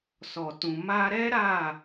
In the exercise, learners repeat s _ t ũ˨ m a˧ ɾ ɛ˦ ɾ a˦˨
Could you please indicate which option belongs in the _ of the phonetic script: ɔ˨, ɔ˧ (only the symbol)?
ɔ˨